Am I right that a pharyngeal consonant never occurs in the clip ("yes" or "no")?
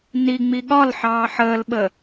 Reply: no